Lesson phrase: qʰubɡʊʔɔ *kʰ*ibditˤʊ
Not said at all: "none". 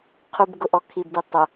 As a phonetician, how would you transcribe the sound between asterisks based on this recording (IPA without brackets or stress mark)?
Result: kʰ